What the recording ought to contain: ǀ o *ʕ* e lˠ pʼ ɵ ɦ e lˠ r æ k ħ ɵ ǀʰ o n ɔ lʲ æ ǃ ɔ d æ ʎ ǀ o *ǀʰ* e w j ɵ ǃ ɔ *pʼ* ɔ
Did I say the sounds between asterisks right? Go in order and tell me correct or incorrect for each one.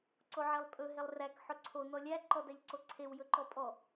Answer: correct, correct, correct

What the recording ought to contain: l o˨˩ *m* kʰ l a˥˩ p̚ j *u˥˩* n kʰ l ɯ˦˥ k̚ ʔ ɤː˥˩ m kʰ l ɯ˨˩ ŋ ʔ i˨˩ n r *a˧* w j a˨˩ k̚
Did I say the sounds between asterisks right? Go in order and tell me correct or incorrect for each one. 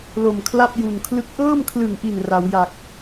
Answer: correct, incorrect: u˨˩, incorrect: a˩˦

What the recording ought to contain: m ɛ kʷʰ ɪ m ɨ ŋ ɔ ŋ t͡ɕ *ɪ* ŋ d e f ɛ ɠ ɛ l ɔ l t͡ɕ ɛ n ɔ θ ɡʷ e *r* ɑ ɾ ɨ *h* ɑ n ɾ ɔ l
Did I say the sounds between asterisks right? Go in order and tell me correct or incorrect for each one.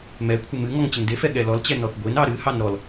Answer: correct, incorrect: n, correct

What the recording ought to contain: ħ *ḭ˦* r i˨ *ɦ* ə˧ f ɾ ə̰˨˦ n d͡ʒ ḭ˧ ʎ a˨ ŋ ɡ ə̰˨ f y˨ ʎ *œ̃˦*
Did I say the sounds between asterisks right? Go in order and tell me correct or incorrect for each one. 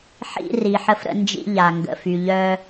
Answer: incorrect: ḭ˧, incorrect: ħ, incorrect: œ˦

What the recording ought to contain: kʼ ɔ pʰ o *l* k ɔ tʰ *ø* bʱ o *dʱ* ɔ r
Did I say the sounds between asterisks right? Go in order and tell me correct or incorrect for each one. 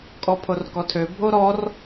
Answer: incorrect: r, correct, incorrect: ɾ

